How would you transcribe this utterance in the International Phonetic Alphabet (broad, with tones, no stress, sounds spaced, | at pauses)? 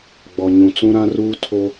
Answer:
ɡ͡b ɔ˨ ɲ ũ˨ t͡s ũ˦ ɾ ã˦ r uː˦ tʰ o˦